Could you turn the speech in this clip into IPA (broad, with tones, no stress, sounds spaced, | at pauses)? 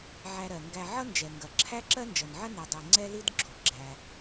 ʕ æ˧ ɾ ɜ˩ ŋ ɡ æ˧ ʕ ʌ˥ n d͡ʒ ɛ˩ ŋ ɡ ɐ˩ ǁʰ æ˥ ǁ ɜ˥ n d͡ʒ ʌ˩ n ʕ ɐ˥ n e˩ dˤ æ˩ ŋ͡ǀ ɛ˥ l i˥ d ɡ͡ǁ o˩ ɡ͡ǁ æ˩